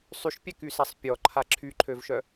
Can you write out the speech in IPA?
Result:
sˤyʃpʲɛkysɛsˤ pʲɔǃʰa ǁʰyǃʰøvʃœ

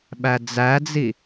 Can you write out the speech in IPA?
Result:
ɓæd͡zæd͡zi

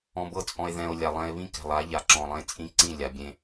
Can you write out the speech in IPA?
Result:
ɔ̃˧bɤ˦t͡sʼɔ̃˧e̯ ðɛ̃˨o̯ lʲa˨lˠɛ̃˧e̯βĩ˦ kɛ̤˨lˠa˨˦ ʎa˨ǁɔ̃˨lˠẽ˧ t͡sʼĩ˧ǀĩ˦˨ lʲa˨bʲẽ˧

